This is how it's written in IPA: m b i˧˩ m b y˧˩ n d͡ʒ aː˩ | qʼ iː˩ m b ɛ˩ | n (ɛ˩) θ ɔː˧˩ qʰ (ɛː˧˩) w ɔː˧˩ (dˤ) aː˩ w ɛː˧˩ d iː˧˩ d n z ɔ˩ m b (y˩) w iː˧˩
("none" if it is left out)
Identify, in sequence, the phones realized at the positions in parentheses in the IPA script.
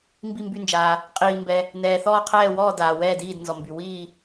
ɛː˩, ɛː˧˩, d, y˩

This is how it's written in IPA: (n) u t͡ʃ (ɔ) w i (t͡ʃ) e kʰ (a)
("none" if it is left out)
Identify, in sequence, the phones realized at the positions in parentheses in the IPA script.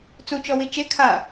t͡s, ɔ, t͡ʃ, a

